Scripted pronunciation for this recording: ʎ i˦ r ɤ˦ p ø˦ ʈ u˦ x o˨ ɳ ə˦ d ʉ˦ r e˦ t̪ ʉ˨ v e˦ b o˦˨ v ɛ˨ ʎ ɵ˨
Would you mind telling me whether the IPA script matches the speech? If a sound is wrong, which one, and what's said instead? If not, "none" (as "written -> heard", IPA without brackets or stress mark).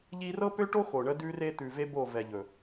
u˦ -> o˦